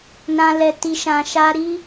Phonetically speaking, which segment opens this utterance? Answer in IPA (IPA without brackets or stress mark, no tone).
n